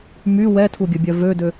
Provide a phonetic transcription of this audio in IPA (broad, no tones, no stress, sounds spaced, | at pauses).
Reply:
m y w ɛ tʰ u ɡʲ ə bʲ œ v ø d ø